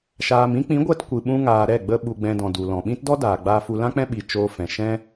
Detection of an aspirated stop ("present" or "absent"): absent